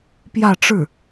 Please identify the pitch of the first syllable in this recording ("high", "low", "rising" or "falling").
falling